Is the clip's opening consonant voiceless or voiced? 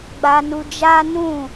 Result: voiced